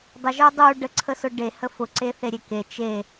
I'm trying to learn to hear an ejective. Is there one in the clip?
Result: no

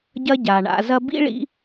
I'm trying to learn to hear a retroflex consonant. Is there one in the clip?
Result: yes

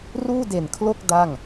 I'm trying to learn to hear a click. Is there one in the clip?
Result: no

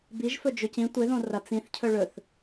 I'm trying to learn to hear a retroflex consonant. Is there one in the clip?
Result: yes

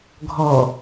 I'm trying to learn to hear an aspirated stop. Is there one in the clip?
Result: no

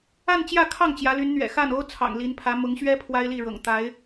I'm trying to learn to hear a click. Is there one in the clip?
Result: no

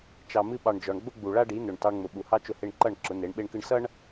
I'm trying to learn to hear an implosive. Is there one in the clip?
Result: yes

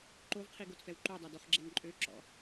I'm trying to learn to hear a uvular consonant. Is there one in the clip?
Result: yes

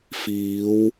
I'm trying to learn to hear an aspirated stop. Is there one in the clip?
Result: no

